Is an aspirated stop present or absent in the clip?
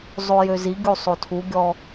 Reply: present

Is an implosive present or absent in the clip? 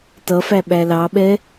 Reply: present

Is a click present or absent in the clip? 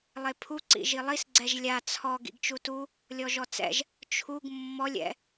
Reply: present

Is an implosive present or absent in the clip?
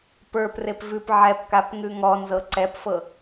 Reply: absent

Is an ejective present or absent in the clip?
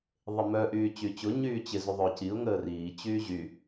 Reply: absent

